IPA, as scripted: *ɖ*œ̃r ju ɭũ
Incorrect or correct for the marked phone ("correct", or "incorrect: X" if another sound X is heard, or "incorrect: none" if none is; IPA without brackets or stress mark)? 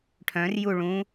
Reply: incorrect: ʈʰ